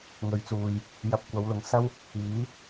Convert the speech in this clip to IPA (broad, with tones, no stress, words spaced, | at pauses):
ŋɵ˨˥ɥt͡suː˨j | jɐ˧p̚ kʷɐ˨˧wlʊ˨ŋsɐ˥w | iː˨˥